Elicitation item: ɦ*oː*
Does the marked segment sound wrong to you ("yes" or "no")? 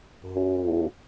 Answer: no